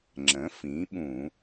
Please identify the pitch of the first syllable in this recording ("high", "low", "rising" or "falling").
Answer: rising